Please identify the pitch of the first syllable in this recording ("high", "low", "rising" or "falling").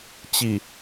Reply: low